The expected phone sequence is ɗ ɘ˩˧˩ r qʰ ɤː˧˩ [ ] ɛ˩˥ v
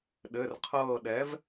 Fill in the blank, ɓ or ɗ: ɗ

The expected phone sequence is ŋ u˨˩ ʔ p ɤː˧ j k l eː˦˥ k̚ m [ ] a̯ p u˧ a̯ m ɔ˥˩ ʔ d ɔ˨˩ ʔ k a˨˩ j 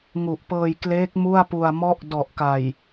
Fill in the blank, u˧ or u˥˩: u˥˩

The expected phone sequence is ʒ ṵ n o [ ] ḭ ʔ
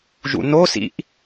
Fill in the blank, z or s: s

